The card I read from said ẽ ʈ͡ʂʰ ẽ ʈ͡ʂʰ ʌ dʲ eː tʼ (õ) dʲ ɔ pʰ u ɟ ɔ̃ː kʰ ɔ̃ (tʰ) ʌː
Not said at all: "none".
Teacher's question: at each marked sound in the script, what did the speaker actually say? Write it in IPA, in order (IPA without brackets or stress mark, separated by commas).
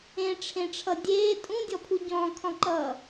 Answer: ũ, ǃ